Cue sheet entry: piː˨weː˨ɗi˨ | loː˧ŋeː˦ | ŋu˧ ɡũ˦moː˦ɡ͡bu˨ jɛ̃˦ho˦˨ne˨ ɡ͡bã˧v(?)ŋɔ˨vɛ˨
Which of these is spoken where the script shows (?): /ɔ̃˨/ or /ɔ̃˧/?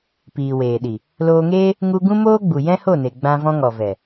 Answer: ɔ̃˧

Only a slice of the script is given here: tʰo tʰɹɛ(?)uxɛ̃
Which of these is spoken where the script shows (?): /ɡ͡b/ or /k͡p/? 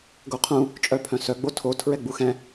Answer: ɡ͡b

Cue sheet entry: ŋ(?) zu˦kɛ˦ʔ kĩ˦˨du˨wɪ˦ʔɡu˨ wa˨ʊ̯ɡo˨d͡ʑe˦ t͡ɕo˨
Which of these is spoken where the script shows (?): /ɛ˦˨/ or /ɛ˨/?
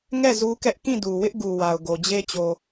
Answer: ɛ˦˨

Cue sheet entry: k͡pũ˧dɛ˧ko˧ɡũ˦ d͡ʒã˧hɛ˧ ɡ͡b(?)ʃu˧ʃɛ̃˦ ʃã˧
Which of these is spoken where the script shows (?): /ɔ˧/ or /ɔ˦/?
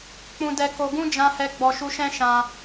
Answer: ɔ˧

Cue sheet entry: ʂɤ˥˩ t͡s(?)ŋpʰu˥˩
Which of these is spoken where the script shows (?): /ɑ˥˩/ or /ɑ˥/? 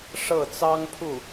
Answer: ɑ˥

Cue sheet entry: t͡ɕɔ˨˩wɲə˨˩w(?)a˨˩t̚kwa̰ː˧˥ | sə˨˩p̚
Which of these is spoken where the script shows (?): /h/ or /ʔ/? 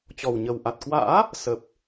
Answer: ʔ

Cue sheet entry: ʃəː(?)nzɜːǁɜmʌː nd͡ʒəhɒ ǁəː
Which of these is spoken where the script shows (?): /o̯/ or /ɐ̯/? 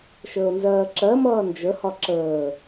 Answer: o̯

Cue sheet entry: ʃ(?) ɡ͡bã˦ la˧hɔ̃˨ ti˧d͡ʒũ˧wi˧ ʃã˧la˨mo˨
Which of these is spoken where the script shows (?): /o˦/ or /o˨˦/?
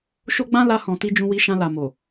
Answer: o˦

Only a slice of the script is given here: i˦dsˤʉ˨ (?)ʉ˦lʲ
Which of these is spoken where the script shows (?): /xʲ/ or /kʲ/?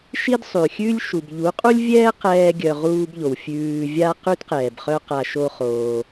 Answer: xʲ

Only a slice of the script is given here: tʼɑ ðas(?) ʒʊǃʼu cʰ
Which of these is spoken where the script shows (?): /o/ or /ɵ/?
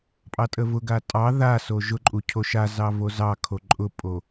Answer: o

